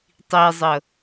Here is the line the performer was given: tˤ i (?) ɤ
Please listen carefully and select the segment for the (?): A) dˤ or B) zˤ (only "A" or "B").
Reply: B